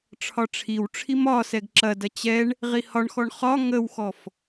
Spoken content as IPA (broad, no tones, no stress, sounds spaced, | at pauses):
ʈ͡ʂʰ ɒ ʈ͡ʂʰ i w ʈ͡ʂʰ i m ɒ s ɛ ɡ ǁ ɐ d ɐ t͡ɕ ɛ ɳ | ʁ i h ɒ ɳ x ɔ ɳ χ ɒ ŋ ə w x ɔ f